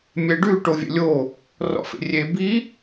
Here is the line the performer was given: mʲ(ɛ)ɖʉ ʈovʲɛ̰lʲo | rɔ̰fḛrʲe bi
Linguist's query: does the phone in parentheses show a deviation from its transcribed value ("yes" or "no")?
no